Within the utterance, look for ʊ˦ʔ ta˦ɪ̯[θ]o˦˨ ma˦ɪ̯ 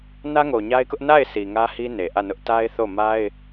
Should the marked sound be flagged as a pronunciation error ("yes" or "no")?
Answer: no